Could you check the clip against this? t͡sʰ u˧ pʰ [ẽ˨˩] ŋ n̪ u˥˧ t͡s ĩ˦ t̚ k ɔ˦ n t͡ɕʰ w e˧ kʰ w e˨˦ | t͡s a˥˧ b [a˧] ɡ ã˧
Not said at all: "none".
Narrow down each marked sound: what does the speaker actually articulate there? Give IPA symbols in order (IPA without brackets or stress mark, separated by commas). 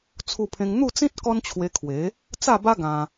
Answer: ẽ˧, a˦